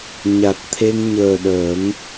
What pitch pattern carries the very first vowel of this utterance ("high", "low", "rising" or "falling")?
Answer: low